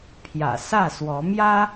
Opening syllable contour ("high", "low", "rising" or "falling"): low